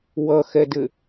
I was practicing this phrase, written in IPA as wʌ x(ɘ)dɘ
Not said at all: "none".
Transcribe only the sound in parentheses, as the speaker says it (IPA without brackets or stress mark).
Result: ɛ